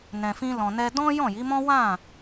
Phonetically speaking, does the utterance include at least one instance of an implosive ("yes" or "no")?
no